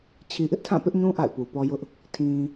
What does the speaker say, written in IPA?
t͡ɕʰ i˨ ʔ ɪ˦ ʔ tʰ ã˦˨ p ɪ˦ ʔ ɲ ũ˦ ʔ a̰˦˨ ɪ̯ p u˨ p ɔ˦ j ʊ˦ ʔ | tʰ ĩ˨

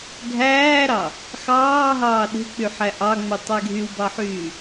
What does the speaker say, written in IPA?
ɡʱ æː ɾ ɑ | x ɑː ɦ ɑː ɗ e̤ k͡p y ħ æ ʔ ɑ ŋ͡m u tˤ æ ɡʱ y w b ɑ ħ yː

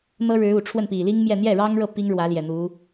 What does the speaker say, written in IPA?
n̪ ɤ˥ ɻ ɻ̩˧˥ u˨˩ ʈ͡ʂʰ w ə˥˩ n p i˨˩ l i˥ ŋ m j ɛ˥˧ n̪ j ɛ˥˩ ɻ ɑ˥ ŋ ɻ ɤ˥˩ p i˥ ŋ ɻ w ä˧˥ l j ɛ˨˩ n̪ u˧˥

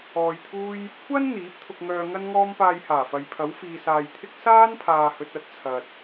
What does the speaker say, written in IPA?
ɔː˧ j t̪ʰ uː˥ j | kʷʰ ɐ˥ n n̪ iː˨˥ p̚ t̪ʰ ʊ˧ k̚ ŋ œː˧ ŋ ɐ˥ n ŋ ɔː˥ m p aː˧ j h aː˨˩ f ɐ˨ j pʰ ɐ˨˥ w f iː˨ s aː˨ j t̪ʰ ɪ˥ k̚ s aː˥ n pʰ aː˨ h ɵ˨ t̚ ɐ˥ t̚ t͡sʰ ɐ˨ t̚

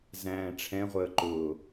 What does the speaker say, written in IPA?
z æ̃ː ʈ͡ʂʰ ɛ̃ ʁʷ əː ǃ ʊː

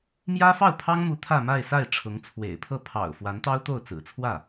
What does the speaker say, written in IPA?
m j ä˥ f ɑ˥˩ ʊ̯ pʰ ɑ˥ ŋ m u˧˥ t̪ʰ ä˥˧ m a˥˧ ɪ̯ s a˥˩ ɪ̯ ʈ͡ʂʰ ʊ˧˥ ŋ t͡sʰ w ḛ˨˩ ɪ̯ pʰ ɤ˥˩ pʰ ɑ̰˨˩ ʊ̯ f w a˧˥ n t̪ ɑ˥ ʊ̯ t̪ o˥˩ ʊ̯ t͡s ɹ̩˨˩ t͡sʰ w ä˥˩

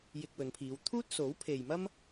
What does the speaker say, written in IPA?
j ɪ˧ k̚ w ɵ˨˧ n pʰ iː˨˧ w t̪ʰ uː˥ t̚ s o˨˥ w pʰ e˨ j m ɐ˥ m

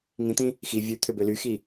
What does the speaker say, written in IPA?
ŋ ĩ t̪ ĩ | x i vʲ ʉ t̪ʰ ø b ø l y x i

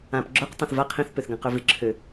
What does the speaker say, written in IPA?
ã p ɡ͡ǁ œ q tˤ õ θ v a qʰ ĩ θ p ø θ ɡ ã q ø v ɪ ǁʰ ø

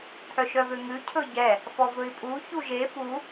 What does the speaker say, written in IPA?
t̪ʰ œ ʃ œ v ø ŋ ʉ cʰ ɵ ɟ ɛ | f ɔ v ɵ i̯ pʼ u ç u ʒ e f u

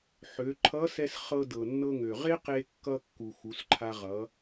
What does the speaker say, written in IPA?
ħ ø˩˧ ǃʰ ʌ˧˥ s ɛ˧ s χ ɤ˧ d ɤ˩ nː ɤ˧ ŋ ø˩ ʁ e˥ q e˧ kː ʌ˧ kː u˩ x u˩˧ s ǃʰ a˧ ʁ ʌ˩˧

